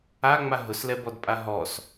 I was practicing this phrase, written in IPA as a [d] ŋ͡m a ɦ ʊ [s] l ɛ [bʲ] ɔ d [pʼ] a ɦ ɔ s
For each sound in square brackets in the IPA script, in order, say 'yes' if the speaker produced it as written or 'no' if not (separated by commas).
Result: no, yes, no, yes